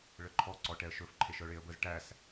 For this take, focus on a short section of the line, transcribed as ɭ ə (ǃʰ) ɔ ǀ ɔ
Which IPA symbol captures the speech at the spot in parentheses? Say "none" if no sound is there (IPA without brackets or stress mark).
ǃʰ